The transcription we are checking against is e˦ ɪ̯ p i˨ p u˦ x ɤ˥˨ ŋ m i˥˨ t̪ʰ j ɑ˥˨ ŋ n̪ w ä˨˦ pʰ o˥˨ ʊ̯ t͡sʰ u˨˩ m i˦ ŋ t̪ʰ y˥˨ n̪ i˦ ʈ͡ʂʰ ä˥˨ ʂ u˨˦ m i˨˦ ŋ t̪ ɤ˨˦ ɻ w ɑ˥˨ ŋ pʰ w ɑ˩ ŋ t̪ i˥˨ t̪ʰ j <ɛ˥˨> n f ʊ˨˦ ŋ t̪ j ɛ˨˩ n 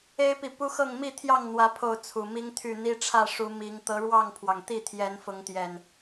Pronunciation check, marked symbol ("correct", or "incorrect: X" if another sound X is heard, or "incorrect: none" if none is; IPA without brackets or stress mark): incorrect: ɛ˨˦